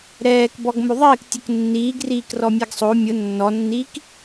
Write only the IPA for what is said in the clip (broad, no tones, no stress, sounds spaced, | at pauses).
ɾ ɛː k b ɔ ɡ m o ðˤ ɪː k tʲ ʊ k nː iː ɡ r iː k r ɔ mʲ a ɡ sˤ o mʲ ʊ nː ɔ nː iː k